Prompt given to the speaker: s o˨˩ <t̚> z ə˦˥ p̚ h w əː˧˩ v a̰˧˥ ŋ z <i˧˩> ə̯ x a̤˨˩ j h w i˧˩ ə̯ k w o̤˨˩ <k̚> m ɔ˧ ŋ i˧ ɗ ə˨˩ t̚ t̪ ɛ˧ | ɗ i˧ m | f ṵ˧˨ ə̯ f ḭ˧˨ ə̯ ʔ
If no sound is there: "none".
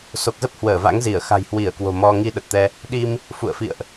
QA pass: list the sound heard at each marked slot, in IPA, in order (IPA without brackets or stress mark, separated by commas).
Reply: k̚, i˧˩, none